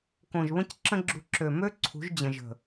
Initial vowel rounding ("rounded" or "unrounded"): rounded